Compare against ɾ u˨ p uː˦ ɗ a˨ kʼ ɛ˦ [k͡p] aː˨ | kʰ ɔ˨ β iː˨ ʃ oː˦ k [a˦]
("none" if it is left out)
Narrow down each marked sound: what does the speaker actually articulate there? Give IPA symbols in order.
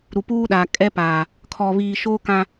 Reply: p, ã˦

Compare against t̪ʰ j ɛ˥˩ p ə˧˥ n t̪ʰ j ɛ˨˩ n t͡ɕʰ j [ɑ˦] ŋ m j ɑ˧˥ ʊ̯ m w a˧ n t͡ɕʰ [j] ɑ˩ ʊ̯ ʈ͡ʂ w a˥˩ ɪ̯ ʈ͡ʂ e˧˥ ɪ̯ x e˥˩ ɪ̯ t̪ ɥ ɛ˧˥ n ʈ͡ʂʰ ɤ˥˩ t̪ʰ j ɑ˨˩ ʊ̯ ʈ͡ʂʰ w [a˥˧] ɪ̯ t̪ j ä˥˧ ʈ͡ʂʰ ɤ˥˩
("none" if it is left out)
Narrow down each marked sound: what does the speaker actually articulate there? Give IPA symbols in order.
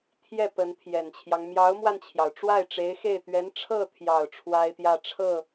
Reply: ɑ˦, j, a˥

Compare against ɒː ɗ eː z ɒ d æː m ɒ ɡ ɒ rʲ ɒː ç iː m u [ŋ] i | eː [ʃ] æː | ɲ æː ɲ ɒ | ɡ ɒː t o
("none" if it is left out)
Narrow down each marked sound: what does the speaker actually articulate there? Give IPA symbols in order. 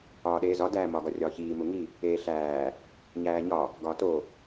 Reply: ŋ, ɬ

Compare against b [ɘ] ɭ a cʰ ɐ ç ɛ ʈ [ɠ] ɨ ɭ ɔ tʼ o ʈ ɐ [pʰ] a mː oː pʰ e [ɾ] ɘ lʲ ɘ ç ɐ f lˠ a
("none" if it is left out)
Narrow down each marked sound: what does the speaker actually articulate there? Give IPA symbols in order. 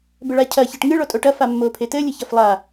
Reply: ɘ, ŋ, f, t

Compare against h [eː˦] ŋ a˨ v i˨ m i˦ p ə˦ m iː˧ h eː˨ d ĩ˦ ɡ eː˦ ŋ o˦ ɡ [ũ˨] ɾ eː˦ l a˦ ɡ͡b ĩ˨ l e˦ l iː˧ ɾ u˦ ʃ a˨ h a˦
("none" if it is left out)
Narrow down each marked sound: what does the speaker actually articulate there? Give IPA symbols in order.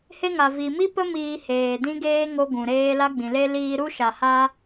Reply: e˦, ũ˨

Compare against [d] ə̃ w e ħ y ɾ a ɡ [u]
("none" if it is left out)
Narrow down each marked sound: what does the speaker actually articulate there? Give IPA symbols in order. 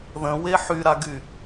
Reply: ð, y

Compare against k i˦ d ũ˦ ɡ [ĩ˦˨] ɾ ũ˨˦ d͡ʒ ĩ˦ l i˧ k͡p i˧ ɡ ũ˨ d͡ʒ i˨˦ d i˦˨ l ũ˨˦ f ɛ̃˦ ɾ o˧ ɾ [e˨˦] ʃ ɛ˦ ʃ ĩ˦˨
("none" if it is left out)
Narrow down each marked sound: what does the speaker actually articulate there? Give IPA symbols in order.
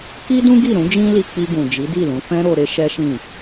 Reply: i˦˨, e˦

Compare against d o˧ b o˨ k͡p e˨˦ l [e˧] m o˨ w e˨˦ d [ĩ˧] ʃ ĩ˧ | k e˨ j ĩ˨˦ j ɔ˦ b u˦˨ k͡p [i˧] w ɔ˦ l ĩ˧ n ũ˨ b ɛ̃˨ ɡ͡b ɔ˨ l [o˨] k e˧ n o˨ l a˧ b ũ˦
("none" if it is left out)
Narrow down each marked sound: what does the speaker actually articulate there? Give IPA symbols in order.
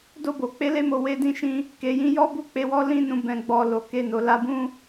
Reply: e˧, ĩ˧, e˧, o˨

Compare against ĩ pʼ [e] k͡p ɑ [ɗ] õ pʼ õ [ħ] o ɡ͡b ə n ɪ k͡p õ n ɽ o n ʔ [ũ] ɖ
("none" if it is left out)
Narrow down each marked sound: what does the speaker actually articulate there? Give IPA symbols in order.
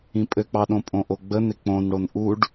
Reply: ɘ, ɗ, ʔ, u

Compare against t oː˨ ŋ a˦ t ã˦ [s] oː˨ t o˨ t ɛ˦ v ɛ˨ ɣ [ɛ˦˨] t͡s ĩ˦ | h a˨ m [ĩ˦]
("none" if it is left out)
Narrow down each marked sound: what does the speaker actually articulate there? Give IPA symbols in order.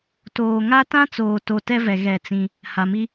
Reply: t͡s, ɛ˦˨, i˦

